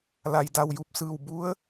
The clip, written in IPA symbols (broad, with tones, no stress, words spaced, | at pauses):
la˩j da˧˩w ju˧˩p̚sɯː˧˩w bu˧˥ə̯